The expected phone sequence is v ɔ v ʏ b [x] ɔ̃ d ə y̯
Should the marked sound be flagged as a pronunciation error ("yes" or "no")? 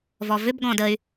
yes